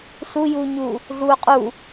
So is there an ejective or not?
yes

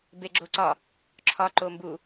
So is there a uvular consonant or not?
no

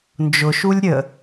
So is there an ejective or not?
no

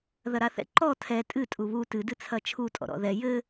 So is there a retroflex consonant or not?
no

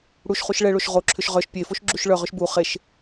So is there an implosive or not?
no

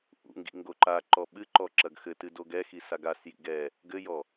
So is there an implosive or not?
yes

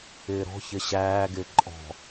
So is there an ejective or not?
yes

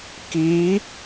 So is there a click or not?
no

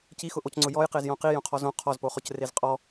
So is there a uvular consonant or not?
yes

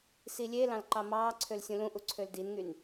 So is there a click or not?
yes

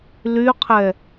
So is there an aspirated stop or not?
yes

